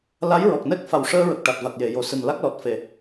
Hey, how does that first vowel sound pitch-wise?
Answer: rising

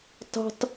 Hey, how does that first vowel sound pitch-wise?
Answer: high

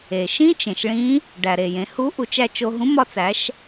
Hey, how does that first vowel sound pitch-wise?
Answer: low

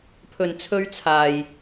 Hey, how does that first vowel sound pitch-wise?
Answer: low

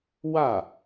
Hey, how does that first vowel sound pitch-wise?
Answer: falling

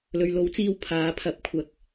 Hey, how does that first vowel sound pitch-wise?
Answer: low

